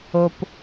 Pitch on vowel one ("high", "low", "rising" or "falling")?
low